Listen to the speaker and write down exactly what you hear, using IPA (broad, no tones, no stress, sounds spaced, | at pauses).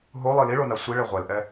ɦ o lˠ i l i ɭ o n a sʷ i ɭ e ʁʷ ɛ l ʔ ɛ